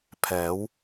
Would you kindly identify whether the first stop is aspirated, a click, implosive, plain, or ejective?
aspirated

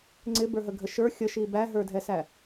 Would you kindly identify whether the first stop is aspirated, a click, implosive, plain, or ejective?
click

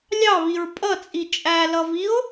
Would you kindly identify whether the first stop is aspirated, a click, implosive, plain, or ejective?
ejective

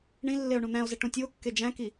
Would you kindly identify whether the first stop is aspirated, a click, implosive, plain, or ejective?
plain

